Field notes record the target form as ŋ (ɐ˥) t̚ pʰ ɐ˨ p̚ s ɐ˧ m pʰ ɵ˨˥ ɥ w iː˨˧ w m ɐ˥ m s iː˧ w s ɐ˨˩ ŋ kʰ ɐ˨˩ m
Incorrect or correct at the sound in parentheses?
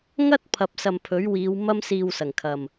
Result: correct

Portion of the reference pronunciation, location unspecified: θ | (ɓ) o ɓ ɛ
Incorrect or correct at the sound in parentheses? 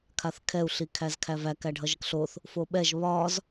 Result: incorrect: f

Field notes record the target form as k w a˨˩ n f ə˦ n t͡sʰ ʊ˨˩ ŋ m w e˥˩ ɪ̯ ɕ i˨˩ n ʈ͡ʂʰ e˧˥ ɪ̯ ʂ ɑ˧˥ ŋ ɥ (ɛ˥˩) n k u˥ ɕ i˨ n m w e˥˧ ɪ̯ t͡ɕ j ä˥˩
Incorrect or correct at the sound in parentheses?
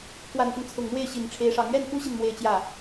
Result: correct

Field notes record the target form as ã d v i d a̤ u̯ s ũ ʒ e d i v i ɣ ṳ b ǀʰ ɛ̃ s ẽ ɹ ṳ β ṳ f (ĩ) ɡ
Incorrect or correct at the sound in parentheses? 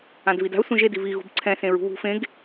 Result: incorrect: ẽ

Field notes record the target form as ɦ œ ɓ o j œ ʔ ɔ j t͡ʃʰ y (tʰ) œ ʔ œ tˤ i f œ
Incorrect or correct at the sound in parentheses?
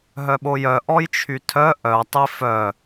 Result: correct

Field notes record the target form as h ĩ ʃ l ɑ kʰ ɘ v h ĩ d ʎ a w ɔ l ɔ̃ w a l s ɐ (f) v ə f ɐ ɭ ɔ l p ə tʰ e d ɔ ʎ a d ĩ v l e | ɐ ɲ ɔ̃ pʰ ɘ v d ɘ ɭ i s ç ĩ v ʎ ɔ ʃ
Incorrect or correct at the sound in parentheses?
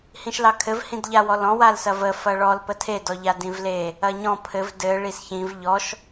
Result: incorrect: none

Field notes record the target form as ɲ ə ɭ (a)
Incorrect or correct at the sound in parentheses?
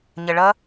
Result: incorrect: ʌ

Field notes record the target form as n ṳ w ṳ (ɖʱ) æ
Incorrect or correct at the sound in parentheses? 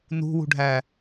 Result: correct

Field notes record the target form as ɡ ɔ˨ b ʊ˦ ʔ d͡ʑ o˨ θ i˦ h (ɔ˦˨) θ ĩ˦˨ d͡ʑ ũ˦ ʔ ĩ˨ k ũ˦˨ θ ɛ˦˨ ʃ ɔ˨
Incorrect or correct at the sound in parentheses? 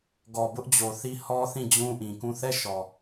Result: incorrect: ɔ˦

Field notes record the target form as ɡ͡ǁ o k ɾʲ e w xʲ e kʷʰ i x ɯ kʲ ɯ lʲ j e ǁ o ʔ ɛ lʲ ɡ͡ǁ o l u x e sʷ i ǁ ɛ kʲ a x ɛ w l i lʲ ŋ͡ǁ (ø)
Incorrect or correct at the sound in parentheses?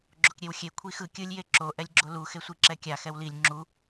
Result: incorrect: u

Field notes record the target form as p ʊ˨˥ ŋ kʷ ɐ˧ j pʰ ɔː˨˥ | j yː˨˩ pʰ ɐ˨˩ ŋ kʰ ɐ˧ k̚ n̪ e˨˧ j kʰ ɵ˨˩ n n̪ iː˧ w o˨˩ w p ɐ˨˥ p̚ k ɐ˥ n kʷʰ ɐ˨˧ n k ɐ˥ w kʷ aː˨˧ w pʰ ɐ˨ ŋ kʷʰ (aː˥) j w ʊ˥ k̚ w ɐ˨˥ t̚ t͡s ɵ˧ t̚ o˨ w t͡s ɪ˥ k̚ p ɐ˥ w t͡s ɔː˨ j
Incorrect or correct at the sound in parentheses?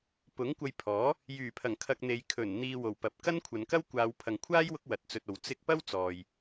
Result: correct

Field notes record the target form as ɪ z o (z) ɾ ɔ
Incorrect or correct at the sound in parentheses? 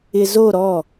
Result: incorrect: none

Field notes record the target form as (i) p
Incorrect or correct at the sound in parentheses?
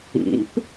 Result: incorrect: ḭ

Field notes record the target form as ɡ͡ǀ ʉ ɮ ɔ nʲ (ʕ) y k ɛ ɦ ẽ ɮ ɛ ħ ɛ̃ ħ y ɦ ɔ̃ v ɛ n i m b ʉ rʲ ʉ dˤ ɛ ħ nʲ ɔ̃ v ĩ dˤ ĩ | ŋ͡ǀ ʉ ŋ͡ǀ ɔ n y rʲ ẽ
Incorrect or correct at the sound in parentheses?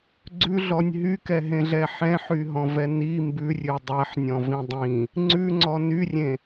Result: incorrect: ɦ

